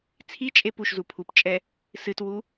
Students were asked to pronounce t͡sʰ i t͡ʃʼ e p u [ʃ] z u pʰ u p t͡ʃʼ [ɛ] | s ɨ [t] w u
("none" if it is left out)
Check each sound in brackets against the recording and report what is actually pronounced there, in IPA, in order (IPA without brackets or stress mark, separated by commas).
ʃ, ɛ, t